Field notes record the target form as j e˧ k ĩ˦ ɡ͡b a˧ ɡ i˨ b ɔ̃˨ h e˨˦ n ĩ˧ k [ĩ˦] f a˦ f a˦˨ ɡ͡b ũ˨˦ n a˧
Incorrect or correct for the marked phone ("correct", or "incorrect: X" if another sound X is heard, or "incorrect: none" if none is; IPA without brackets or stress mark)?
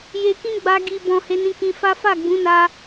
incorrect: ĩ˧